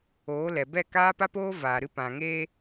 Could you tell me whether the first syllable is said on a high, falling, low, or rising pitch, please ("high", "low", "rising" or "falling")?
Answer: rising